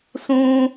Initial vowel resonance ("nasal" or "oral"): nasal